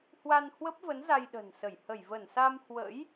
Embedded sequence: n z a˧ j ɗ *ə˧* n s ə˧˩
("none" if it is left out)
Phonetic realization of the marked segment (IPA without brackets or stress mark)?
ə̤˨˩